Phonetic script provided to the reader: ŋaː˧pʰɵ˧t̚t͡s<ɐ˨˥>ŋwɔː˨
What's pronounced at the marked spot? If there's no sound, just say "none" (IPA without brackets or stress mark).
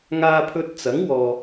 ɐ˨˥